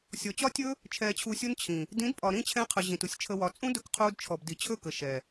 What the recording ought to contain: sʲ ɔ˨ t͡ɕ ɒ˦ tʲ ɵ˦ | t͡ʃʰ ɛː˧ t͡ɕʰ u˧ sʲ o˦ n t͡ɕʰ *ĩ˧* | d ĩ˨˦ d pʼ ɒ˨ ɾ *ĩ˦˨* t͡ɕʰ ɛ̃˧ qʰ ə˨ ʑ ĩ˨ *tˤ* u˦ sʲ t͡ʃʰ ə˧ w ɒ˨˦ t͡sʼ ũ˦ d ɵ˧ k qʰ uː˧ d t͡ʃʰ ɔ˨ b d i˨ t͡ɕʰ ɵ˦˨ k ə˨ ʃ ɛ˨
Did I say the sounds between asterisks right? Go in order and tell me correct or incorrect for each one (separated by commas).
incorrect, correct, incorrect